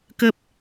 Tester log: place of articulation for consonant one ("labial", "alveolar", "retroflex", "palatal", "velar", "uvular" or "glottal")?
velar